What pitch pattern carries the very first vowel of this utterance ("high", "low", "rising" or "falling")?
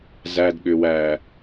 low